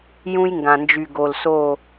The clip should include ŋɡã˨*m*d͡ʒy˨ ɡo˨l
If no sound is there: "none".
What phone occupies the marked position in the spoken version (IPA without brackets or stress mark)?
n